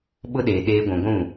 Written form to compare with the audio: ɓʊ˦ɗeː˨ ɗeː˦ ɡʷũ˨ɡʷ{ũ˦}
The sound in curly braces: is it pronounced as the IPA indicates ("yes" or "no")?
no